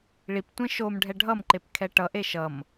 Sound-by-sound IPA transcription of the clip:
ɭ i p tʷ ẽ ʃ o m ɖʱ ɛ ɖʱ ʌ m ǃ e p kʰ ɛ ʈ ʌ ʔ e ʃ ʌ m

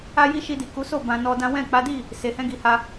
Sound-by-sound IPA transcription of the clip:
a˦ j i˦ ʃ i˧ d i˨ k u˨˦ s o˦˨ b ã˧ n ɔ˧ d ã˦ w ɛ̃˦˨ k͡p a˨˦ d i˦˨ | s e˨ h ɛ̃˧ ɡ i˨ h a˧

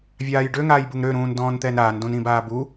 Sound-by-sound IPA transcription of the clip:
vʲ aː j ɖ ø ŋ aː j b u ŋ ɾ ø ɾ ũː n d ɔ̃ː n t̪ ɛ n ɾ aː n d õ n ĩ b aː b u

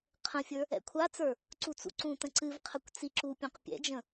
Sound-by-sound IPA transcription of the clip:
qʰ ə̃ fʲ ə˞ | ɛ̰ kʷʰ a t͡s ə˞ | ǀ u t͡s ṵ ǀ ũ t ə̃ ǀ ɨ v qʰ ə kʷ t͡s i ǁ u pʲ ũ q pʲ ɛ̰ d͡ʒ ə̃

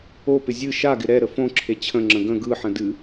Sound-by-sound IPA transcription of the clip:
o p ɪ zʲ ɨ ʃ a ɡ ɪ ɾ ɛ ɾ ə f õ ǁʰ e t͡ɕʰ ə̃ ŋ͡ǁ ə̃ ɡ ə̃ ɡ ɯ ħ ə̃ d ɨ

